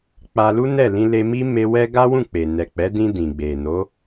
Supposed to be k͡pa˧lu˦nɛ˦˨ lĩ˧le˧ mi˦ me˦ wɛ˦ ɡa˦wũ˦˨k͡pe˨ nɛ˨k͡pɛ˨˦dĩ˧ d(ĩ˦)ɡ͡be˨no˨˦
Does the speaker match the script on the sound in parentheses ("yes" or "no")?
no